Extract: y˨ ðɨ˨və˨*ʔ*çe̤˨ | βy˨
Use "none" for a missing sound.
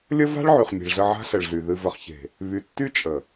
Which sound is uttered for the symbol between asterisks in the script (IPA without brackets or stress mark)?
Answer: χ